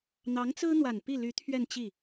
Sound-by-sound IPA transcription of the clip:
n̪ɑ˧˥ŋt͡sɹ̩˥n̪wa˨˩n pi˥˩ly˧˥ t̪ʰɥɛ˥˧nt͡ɕi˥˩

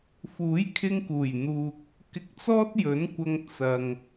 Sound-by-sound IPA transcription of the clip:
fuː˨˥jkʰɪ˧ŋkuː˨˩jn̪uː˨k̚ | kɪ˧k̚t͡sɔː˥t̚jɵ˨˥nkʷɐ˧ŋ t͡sɐ˨ŋ

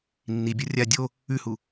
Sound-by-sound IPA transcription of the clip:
nːibʲo rʲa dʲo | ʉhu

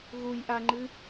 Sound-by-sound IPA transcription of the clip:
ɣuj ʔaŋ͡ǃɨ

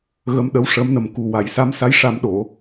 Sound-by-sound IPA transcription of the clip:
ɣə˧˥mɗə˧˥wʂə˧˥mnə˨˩m ku˨˩wa˨˩˨jsa˧˥msa˧˥j ʂa˧mɗo˨˩˨

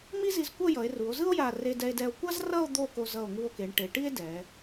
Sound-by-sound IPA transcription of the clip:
mi˥zi˧zkʷʌ˥˧ jʌ˩˧e̯ru˩˧o̯zɯ˥o̯ ja˧˩re˧dɛ˧e̯dɛ˧o̯ kʷa˥z rʌ˥˧o̯ d̪o˥˧ko˧ zʌ˧˩o̯ŋu˧o̯ke˩˧ɳ ʈe˩˧ʈi˥e̯ dɛ˩˧

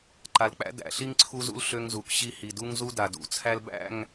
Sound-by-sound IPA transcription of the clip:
ǃa˨lk͡pæ̰˦ dæ̰˨ ɬi˦ŋǀʰu˦zṵ˦l ɬø˦ŋzu˨kɕi˦hi˨ du˦ŋzu˦ da˨dṵ˨t͡sʰæ˦lbæ̰˦˨ŋ

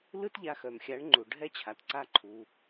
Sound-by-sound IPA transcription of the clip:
lɯ˦tʎa˧xœ˨mxʲa˨˦ɳ ŋ͡ǃu˨ ɖʱɛ˦t͡ɕʰa˨t ǀa˦ǃʰu˧

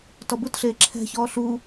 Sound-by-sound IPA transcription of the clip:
tɔbutɬeː ǁʰɛ̤çɔː ɬu

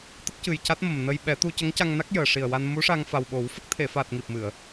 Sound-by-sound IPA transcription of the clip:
t̪ə˦˥k̚cɨ˨˩jca˦˥t̚ mə˨˩mnə˧jɓɛ˨˩˦ t̪u˧cə˧˥ŋca˧ŋna˦˥k̚ jəː˨˩ʂi˨˩ə̯wa˧n mu˧˥ʂa˧ŋfa˨˩wɓo˨˩˦w fə˦˥k̚t̪ʰe˨˩˨fa˨˩t̚ ŋi˨˩p̚mɨ˨˩˨ə̯

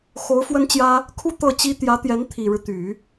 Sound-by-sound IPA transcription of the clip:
xo˧˥ʊ̯fwə˥nt͡ɕjä˥ | kʰu˥ t̪ɤ˥˩t͡ɕi˥ t̪jä˧˥t̪jɛ˧˥n t̪ʰi˨˩ɻɻ̩˦ t̪y˨˩˦

